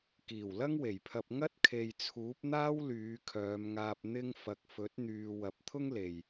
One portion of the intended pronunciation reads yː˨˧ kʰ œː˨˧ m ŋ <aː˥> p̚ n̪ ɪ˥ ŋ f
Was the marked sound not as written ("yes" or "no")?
yes